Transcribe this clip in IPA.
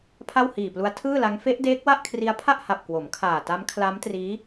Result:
pʰ a˥˩ w h iː˨˩ p l u˦˥ a̯ tʰ ɯː˥˩ l a˦˥ ŋ f e˦˥ ʔ d eː˦˥ k̚ w a˥˩ ʔ kʰ r i˦˥ a̯ pʰ a˥˩ ʔ h a˨˩ p̚ k w o˩˦ m kʰ aː˨˩ t a˦˥ m kʰ l a˦˥ m t r iː˦˥

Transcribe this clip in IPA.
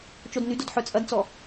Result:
t͡ʃ o d n y d o d ħ œ t͡sʼ ɐ d t͡s ɔ

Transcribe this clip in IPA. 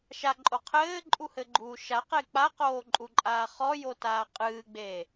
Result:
ʃ a ǃʼ o qʰ ɘː ǃʼ u h ɘ ɡ͡ǃ uː ʃ a q e k͡p a q oː ǃʼ u ǃʼ aː χ ɔ j o t aː qʼ ɨː ɡ͡b eː

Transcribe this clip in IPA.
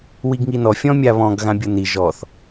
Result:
w i ɡ ŋ i n ɔ fʲ ɔ̃ mʲ a β ɔ̃ ɡ ɣ ã bʲ ɤ n i ʒ ɔ θ

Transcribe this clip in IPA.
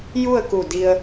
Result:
j u˥˨ ə̯ k u˧˩ d i˧ ə̯

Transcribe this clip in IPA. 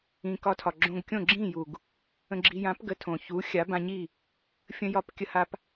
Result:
ĩ˩ k ɒ˧ tʰ ɒ˩ ɡ͡ǁ õ˧ ɡ kʲ õ˥˩ ɡ͡ǁ ĩ˥˩ j u˩ ɡ | ə̃˧ ɡ͡ǁ i˧ j ã˩˥ p ɡ ə˩˥ tʰ õ˩ ç u˩˥ xʲ a˩˥ b ã˧ ɲ i˥˩ | fʲ ə̃˧ j ɒ˧ p kʲ ə˧ h a˧ p

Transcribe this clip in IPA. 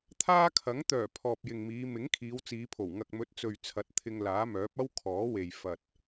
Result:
t̪ʰ aː˥ kʰ ɐ˨˥ ŋ t̪ œː˨˩ pʰ ɔː˨ p̚ j ɪ˨ ŋ m iː˨˧ m ɪ˨˥ ŋ kʰ iː˨˧ w t͡s iː˨˧ pʰ o˨˩ w ŋ ɐ˨ k̚ m ɵ˨˥ t̚ t͡s ɵ˨ ɥ t͡sʰ ɐ˨˥ t̚ t̪ʰ ɪ˧ ŋ l aː˨˥ m œː˨˥ p̚ ɐ˥ w kʰ ɔː˨˥ w e˨ j f ɐ˨ t̚

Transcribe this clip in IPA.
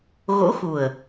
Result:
ɣ o̰˧˥ x u˨˩ ə̯

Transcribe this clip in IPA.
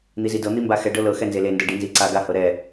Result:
n̪ i z i d ɤ n̪ i m b a x ɛ ɖ ɤ l ɤ x ɛ n z e l e n d ɤ ɖ i n z i ǀ a ɡ a h ɤ ɾ ɛ

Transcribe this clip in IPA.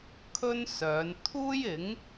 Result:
kʰ ɵ˥ n s œː˨˧ n t̪ʰ uː˥ j ɪ˨˥ ŋ

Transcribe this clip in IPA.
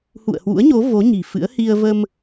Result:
h ṵ˧˨ ə̯ h w ṵ˧˥ ə̯ ɲ o˨˦ v o˨˦ ɲ i̤˨˩ f ɨ̰˧˥ ə̯ h i˧ ə̯ v ə˧ m

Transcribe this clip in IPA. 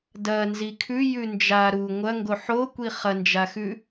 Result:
d ɐ n z i kʰ ʉ j ʉ n d͡ʒ a ɾ u ŋʷ ɐ ŋ ɡ o ħ o kʷ i χ ɐ n d͡ʒ a x ʉ

